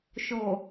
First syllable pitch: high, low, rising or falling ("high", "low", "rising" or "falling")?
low